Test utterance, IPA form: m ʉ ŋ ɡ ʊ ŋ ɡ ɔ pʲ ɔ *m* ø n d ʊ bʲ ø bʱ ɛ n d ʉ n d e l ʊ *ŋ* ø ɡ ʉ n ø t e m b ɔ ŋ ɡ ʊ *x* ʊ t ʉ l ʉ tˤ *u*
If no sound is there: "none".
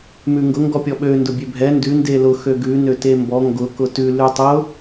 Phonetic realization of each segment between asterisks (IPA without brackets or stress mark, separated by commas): ɓ, x, k, ʊ